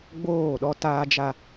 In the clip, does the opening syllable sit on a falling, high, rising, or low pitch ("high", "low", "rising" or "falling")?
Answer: falling